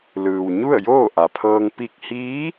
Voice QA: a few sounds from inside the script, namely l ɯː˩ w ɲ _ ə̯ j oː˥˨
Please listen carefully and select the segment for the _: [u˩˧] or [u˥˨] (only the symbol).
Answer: u˥˨